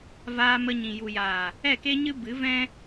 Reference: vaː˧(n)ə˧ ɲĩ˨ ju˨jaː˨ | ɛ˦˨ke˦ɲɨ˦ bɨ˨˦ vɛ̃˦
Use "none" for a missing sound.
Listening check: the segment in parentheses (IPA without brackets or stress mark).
m